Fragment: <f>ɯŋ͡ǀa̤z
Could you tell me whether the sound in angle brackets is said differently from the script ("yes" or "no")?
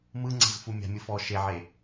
yes